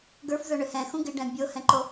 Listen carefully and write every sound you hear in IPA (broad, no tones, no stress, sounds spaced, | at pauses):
ɡ ə˞ f z ə˞ ɳ ʏ h ɛ̃ x ũ ɡ ɪ ɖ ɛ̃ bʲ o h ɛ̃ ǃ o